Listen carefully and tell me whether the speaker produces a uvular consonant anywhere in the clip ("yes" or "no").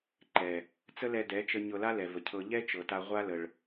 yes